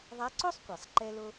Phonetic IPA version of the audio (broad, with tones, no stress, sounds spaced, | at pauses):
ðˤ a˧˥ ǀ o˥ sˤ kʷ e˩ sˤ ǃ ɛ˧ l o˧